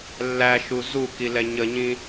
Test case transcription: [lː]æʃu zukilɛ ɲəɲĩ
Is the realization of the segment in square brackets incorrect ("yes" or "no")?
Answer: no